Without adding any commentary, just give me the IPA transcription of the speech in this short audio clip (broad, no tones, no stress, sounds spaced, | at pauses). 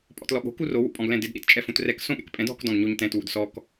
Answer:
pʼ ɔ̰ t l ɔ ɠ o̤ k u r o w ṵ pʼ ɔ̃ ɡ l ɛ̃ d ɪ d ɗ ḭ t t͡ʃʼ ɛ f ũ t r ɛ k s õ ɠ ɛ̰ k pʼ ɛ̃ d ɔ̤ k d ɔ̃ ɡ ɲ o ɲ t ɛ̃ t w ṵ d s ɔ k